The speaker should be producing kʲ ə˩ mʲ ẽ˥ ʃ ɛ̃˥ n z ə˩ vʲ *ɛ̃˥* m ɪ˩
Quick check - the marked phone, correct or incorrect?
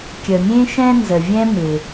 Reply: correct